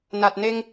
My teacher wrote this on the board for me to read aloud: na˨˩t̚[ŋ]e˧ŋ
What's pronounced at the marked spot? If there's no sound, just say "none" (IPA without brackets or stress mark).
n